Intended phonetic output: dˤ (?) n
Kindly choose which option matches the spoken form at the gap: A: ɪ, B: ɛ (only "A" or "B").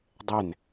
B